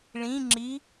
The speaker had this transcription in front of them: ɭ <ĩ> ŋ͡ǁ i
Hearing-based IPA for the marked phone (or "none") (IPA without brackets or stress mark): ĩ